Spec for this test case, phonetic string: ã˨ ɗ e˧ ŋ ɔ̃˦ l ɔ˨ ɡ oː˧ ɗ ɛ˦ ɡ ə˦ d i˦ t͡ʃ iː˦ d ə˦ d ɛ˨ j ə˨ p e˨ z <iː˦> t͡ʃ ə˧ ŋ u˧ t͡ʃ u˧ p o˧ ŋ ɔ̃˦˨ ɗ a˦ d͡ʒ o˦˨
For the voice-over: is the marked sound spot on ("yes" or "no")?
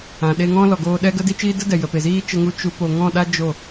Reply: yes